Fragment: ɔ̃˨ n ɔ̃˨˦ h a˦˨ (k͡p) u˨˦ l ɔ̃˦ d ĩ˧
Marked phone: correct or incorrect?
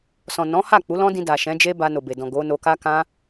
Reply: correct